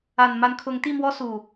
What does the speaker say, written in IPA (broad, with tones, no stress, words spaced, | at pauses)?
a˨˩nma˨˦n kʰʊ˨˦ŋ t̪i˥˨mwɔ˦su˨˩